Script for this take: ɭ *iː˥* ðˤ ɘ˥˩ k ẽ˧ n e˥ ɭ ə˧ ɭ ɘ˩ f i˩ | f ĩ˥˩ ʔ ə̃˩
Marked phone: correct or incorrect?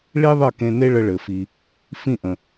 incorrect